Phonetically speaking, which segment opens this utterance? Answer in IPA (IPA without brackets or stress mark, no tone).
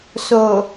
s